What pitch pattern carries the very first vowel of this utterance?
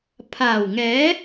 low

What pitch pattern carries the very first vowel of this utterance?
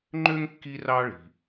high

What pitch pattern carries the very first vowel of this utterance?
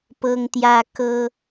high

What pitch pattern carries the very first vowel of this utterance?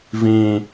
low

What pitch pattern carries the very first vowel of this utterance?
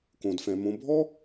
low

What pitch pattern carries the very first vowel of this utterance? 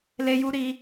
high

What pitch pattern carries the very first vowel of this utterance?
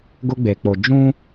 high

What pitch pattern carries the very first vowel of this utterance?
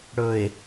low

